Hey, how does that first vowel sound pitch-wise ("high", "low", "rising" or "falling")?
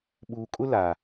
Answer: low